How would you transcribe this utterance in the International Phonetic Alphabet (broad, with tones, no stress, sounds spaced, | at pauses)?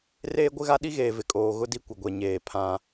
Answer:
r eː˦ ɡʷ ɪ˦ ɣ a˦ ɗ i˦ ɣ eː˨ v ɪ˨ kʼ oː˨ ɣ ʊ˦ d i˦ kʷ ɪ˨ ɡʷ ɛ˨ ɲ eː˨ pʰ ã˦